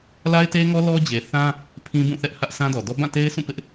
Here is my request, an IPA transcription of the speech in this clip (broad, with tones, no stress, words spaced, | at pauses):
la˦ɪ̯te˦ŋɔ˦ lɔ˦d͡ʑe˨θã˦ | pʰĩ˦bũ˦˨θɛ˦ʔ hä˦ʔsʰã˦dɔ˨ dɔ˦ bã˦˨te˦ɪ̯sʰũ˦˨ pɪ˦ʔ